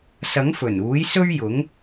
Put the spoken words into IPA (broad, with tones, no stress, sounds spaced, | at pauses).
s ɐ˨˥ ŋ f ɵ˨˩ n uː˨˥ j s ɵ˥ ɥ j ʊ˨˥ ŋ